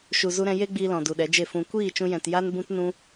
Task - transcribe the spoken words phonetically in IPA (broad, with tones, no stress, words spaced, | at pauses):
ʃu˨zu˧ ɾɛ̃˧je˦ɡ͡biː˧ lɔ̃˨du˨ɗɛ˨˦d͡ʒe˦˨ fũ˨kʷiː˦˨ t͡ʃũ˧jɛ̃˨t ja˦nbũ˦tnũ˦